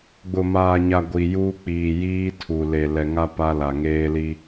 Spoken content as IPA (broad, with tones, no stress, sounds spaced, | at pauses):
ɡ͡b ʊ˨ m aː˨ ɲ a˨ ɡʷ i˨ j uː˦ k͡p iː˨ j iː˦ tʰ u˨ l e˨ l ɛ˨ ŋ a˦ p a˦ l a˨ ŋ eː˦ l i˦